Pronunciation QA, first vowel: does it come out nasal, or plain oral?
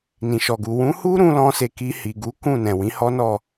nasal